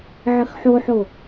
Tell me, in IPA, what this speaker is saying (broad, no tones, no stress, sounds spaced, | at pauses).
ʕ ə x ħ o ħ o